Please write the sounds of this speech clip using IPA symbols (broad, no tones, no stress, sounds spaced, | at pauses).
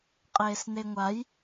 qʼ eː s n e ŋʷ a j